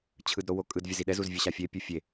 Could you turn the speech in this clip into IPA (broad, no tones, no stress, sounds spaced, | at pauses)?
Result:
t͡ɕʰ ɯ d ɾ o w o kʼ ɯ d vʲ ɛ z i ɗ ɛ z u z vʲ ɯ ɕ a fʲ e pʲ u fʲ e